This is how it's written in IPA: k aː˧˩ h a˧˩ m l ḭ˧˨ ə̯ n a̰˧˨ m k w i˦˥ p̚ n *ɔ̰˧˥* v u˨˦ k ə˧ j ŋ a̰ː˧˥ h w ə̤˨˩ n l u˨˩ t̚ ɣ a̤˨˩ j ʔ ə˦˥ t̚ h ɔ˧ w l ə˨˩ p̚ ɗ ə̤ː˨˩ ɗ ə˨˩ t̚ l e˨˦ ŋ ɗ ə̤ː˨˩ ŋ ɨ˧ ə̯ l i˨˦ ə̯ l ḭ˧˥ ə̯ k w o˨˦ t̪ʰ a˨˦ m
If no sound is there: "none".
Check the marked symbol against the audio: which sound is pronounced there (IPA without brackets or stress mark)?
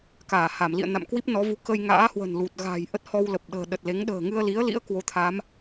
ɔ˨˦